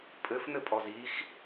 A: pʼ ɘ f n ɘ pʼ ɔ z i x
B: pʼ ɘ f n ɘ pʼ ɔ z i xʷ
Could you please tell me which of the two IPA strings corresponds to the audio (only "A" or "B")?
A